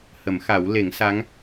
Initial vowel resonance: oral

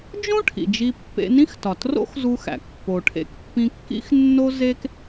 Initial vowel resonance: nasal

